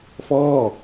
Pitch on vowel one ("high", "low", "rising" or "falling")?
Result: falling